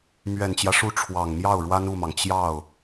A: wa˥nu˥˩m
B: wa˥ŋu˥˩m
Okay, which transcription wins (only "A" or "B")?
A